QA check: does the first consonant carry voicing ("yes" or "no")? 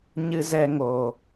yes